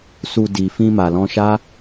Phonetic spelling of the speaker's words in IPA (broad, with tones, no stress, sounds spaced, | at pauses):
s u˨ d i˨ f ĩ˧ m a˨ l ɔ̃˧ ʃ a˦